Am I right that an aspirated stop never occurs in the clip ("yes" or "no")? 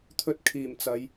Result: no